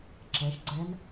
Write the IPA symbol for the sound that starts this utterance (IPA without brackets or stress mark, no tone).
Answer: ǁ